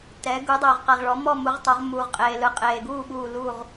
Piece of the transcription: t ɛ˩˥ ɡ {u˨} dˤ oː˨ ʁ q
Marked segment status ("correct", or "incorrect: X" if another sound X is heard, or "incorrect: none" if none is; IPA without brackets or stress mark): incorrect: u˩˥